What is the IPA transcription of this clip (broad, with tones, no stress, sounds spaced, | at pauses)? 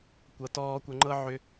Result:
kʷ ɤ˩ t ɔː˧ kʷ ə˧ ŋ͡ǃ ɤ˥ ʕ ʏ˧